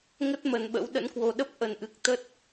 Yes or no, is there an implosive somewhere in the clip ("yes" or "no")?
yes